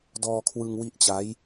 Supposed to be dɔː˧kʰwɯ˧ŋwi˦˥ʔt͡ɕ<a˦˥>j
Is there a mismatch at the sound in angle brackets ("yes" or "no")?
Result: no